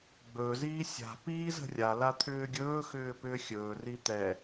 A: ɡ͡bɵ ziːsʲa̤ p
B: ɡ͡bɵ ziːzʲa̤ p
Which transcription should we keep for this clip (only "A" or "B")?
A